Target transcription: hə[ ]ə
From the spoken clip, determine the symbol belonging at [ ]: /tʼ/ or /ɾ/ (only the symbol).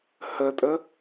tʼ